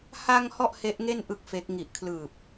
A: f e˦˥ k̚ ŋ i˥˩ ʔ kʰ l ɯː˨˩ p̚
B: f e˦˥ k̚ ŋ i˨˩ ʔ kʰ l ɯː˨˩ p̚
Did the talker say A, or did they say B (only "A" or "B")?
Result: B